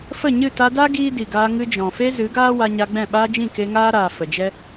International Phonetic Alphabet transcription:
fə˦˨ɲɨ˦˨ ta˧da˦ ɡiː˦di˨ɡaː˧ ŋɨ˧d͡ʒɔ̃˨fe˦ zɨ˨˦ɡaː˦ wa˧ɲa˧ɡ͡bɛ̃˦˨ɓaː˦ d͡ʒĩ˦˨ke˧ ŋaː˦ ɾaː˨ fə˨d͡ʒɛ˦

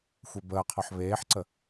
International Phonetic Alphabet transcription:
xʷebəːqʰɔħ βeːħǀə

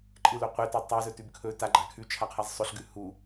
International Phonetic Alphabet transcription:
ǃʼɨlo qʷetɵ tˤazɵtʉb kʰɵ taɡ͡ǃa kʰʉt͡ʃʰaqʰaz sˤɵɬɡʉ hu

